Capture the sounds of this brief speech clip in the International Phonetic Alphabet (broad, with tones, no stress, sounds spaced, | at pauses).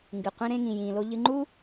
ŋ ɡ ɨ˩ qʷ ĩ˧ ɾ ẽ˧ ŋ ĩ˩ j ĩː˩ l o˧ ʎ ɨ˧ ŋ͡ǃ u˥